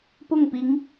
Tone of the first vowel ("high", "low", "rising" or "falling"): falling